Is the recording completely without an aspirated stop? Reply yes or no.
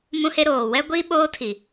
no